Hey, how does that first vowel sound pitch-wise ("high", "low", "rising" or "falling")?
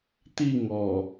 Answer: falling